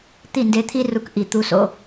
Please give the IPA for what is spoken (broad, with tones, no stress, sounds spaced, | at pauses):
t̪ i˦˨ n d e˧ t̪ʰ i˦ r u˧ k ʔ i˨ t̪ u˧ s o̰˧